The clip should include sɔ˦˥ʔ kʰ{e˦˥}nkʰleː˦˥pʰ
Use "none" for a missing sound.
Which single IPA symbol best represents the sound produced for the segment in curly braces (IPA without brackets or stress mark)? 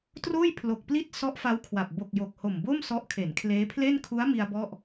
e˩˦